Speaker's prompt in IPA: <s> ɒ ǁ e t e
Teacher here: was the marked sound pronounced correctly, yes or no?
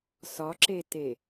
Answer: yes